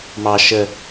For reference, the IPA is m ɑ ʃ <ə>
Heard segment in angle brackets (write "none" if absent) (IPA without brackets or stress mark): ə